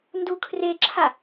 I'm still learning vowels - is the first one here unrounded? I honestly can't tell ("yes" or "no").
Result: no